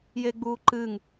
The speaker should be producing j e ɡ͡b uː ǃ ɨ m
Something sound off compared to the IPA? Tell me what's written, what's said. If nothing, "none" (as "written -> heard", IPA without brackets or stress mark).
m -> ŋ